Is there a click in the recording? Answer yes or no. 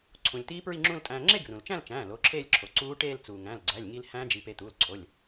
yes